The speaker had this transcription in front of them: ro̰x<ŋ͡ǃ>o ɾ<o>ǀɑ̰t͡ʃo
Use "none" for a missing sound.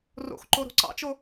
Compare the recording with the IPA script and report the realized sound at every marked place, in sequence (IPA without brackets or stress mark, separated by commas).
ǃ, o̤